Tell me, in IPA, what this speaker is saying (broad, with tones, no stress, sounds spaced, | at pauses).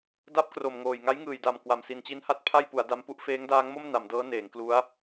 d a˦˥ p̚ k r o˨˩ m ŋ oː˨˩ j ŋ a˦˥ j ŋ ɯː˨˩ j d a˨˩ m k w a˨˩ m s i˨˩ n t͡ɕ i˦˥ n h a˥˩ t̚ pʰ a˥˩ j p u˩˦ a̯ d a˦˥ m p u˥˩ ʔ f eː˦˥ ŋ d aː˦˥ ŋ m o˥˩ m n a˩˦ m d ɤː˦˥ n eː˩˦ ŋ k l u˦˥ a̯